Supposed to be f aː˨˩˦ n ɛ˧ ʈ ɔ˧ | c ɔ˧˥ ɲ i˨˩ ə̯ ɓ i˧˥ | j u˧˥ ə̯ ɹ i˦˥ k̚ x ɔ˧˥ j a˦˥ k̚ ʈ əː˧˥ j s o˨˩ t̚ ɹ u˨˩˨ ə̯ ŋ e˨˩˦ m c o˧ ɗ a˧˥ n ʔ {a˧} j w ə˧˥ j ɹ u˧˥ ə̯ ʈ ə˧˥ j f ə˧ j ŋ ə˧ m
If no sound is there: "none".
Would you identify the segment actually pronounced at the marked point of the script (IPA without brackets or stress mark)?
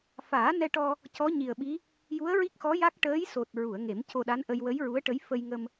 ə˧